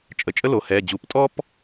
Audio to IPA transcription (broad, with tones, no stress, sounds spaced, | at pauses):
t͡ʃʼ ə˩˧ t͡ʃʼ ə˥ l o˩˧ h ɛː˩˧˩ d͡ʑ u˩˧˩ p tʼ ɔ˥ p